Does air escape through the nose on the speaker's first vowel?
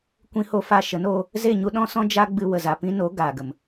yes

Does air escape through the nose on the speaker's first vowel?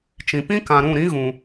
yes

